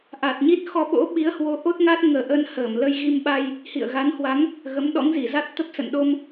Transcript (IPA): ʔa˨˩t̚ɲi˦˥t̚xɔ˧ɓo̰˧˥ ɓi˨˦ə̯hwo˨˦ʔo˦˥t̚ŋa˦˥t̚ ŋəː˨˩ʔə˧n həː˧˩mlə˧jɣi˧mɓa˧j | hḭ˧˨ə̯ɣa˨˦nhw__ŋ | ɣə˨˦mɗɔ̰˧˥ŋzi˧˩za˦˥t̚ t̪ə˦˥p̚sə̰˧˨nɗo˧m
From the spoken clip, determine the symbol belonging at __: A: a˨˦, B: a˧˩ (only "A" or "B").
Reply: A